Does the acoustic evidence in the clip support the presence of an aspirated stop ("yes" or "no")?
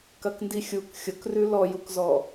no